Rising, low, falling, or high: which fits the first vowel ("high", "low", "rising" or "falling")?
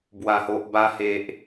low